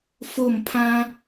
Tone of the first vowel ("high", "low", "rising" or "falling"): falling